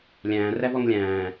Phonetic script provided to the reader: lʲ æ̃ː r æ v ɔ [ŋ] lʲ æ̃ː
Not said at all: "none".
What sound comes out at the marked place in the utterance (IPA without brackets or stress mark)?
ŋ